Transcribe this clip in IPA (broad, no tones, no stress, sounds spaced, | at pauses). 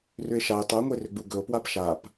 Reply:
r ʏ e̯ ʃ a e̯ tˤ a ŋʷ e r ʏ ɡ͡b u ɡ ɵ o̯ p w a p ʃ a p